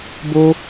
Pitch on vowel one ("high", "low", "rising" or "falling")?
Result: high